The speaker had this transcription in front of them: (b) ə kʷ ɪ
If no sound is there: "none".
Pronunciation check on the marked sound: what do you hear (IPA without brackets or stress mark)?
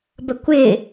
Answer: b